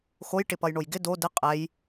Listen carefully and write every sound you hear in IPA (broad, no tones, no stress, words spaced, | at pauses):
xoj ʈɪpʌjɳojɡɪ do dɪ qʼɛj